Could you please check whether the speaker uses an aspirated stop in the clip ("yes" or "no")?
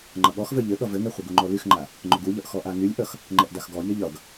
no